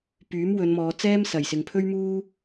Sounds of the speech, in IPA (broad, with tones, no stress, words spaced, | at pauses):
pyː˨˥mwɵ˨˧nmɔː˨˧ t͡sɛː˥msɐ˨˩jsɪ˨ŋpʰɵ˥ɥ muː˥